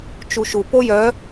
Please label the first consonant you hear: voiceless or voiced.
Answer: voiceless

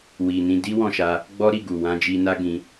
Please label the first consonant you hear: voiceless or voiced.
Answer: voiced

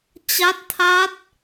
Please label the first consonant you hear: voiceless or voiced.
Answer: voiceless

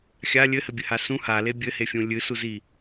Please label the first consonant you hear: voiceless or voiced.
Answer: voiceless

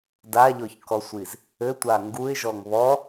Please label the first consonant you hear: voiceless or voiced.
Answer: voiced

